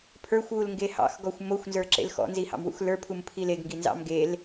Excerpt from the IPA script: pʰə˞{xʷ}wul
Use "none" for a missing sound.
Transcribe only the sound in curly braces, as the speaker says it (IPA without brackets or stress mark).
xʷ